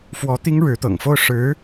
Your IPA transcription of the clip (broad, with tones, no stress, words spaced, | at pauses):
fwɔ˧˥ t̪i˥ŋ ɻɻ̩˧˥t̪ɤ̰˨˩ŋ fo˥˩ʊ̯ ʂɻ̩˧˥